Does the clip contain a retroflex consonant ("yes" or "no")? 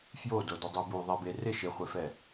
no